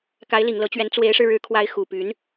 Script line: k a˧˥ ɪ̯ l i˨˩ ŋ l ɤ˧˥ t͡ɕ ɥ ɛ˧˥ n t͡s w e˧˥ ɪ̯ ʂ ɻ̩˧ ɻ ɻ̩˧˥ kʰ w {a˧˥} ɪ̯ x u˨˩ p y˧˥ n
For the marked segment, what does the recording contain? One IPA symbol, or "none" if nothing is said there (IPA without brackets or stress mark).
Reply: a˧˥